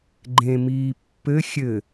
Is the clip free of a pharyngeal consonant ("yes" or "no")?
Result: yes